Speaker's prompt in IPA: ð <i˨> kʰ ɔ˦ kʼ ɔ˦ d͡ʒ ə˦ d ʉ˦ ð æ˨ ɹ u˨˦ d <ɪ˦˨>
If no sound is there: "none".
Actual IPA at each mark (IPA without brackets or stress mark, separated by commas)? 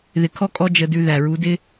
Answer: ɪ˨, ɪ˦